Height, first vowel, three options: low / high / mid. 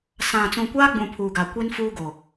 low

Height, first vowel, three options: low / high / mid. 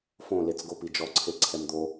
mid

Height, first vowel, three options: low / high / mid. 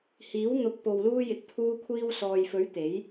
high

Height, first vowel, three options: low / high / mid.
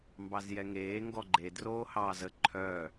low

